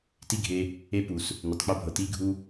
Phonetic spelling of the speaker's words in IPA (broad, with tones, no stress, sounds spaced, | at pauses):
t i˦ ɡʱ e˧ | e˦ p u˨ s | n ʏ˨ tˤ k͡p ɛ˦ bʱ ɤ˨ t i˦ ɡʱ u˦